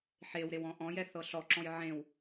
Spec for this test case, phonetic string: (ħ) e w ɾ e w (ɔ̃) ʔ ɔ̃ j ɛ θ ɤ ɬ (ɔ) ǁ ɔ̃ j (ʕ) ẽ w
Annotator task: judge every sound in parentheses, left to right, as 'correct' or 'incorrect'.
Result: correct, correct, correct, correct

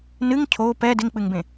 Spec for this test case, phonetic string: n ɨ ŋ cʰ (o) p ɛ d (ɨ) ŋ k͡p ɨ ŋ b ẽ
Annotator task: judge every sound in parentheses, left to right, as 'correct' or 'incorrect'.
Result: correct, incorrect

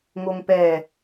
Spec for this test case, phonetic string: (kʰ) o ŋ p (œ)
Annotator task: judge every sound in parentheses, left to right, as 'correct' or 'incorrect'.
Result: incorrect, incorrect

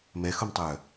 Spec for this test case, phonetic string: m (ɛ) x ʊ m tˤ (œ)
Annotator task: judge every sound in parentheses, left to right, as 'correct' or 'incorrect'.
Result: correct, correct

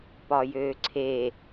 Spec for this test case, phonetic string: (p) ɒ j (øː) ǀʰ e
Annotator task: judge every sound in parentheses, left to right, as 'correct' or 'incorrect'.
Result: correct, correct

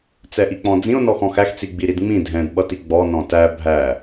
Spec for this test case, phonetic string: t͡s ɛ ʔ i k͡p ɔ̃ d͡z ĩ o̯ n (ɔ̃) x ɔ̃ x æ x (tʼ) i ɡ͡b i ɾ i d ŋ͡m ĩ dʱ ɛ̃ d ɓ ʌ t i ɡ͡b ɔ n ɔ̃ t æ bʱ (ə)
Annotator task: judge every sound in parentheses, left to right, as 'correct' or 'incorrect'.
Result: incorrect, incorrect, incorrect

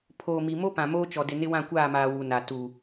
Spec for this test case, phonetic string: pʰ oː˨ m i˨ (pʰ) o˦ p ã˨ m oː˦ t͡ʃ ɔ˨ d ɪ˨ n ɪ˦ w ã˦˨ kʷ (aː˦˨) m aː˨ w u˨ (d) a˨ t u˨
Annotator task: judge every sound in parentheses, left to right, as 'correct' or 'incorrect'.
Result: incorrect, correct, incorrect

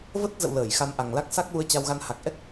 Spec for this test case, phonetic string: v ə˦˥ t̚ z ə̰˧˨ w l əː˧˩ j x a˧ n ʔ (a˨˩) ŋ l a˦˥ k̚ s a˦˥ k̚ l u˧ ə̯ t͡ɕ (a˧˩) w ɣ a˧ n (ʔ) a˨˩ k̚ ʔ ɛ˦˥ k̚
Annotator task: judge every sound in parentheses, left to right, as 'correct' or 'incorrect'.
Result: correct, incorrect, incorrect

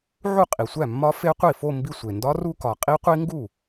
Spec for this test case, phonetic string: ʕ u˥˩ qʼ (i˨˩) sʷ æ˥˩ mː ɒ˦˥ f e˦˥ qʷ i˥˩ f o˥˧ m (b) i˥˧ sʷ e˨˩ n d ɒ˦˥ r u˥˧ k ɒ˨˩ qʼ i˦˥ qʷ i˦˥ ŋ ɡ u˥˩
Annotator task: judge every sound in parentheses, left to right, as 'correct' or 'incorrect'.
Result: correct, correct

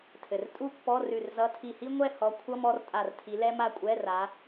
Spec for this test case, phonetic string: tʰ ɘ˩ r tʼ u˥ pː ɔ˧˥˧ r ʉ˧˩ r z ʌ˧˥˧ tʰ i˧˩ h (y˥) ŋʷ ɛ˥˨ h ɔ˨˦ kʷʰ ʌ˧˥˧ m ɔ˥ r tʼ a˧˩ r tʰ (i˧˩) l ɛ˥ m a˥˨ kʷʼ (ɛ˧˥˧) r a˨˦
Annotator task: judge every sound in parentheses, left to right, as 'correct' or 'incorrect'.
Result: incorrect, incorrect, correct

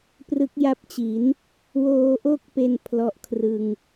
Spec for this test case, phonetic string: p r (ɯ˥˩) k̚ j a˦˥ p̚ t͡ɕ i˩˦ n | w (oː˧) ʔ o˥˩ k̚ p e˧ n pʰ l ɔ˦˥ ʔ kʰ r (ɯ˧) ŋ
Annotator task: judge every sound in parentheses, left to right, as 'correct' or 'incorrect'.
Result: incorrect, correct, correct

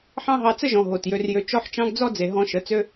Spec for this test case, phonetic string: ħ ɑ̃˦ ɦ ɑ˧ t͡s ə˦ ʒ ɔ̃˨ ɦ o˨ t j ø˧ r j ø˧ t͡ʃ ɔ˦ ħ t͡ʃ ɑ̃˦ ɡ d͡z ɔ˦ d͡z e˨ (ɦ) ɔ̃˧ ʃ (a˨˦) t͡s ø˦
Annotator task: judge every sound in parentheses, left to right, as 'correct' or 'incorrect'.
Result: correct, incorrect

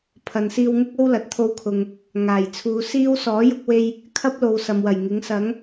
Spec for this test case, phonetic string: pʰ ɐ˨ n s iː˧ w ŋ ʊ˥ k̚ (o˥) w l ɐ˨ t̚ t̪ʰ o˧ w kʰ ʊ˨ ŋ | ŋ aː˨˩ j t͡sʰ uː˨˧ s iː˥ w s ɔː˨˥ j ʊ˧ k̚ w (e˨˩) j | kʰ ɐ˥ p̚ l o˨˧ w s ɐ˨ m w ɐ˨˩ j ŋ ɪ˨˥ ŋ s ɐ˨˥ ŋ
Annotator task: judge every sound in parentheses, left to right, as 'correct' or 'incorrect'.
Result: correct, incorrect

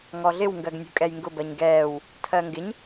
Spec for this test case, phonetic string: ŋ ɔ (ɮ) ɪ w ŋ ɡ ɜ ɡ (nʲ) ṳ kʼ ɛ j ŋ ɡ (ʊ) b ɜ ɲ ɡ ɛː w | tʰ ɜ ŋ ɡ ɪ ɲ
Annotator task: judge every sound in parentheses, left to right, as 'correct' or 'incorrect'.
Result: correct, correct, correct

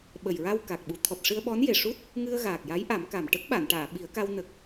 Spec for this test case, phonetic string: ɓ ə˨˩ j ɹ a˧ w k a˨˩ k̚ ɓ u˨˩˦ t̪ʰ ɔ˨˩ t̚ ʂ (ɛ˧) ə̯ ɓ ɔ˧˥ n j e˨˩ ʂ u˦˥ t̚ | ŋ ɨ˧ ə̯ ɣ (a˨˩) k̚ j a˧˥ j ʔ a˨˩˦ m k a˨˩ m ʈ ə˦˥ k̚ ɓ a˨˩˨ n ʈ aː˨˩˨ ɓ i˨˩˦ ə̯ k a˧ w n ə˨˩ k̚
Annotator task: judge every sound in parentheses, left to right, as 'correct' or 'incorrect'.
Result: incorrect, incorrect

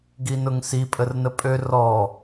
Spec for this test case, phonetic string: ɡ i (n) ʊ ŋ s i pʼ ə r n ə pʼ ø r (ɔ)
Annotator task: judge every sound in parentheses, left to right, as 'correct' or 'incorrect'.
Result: correct, correct

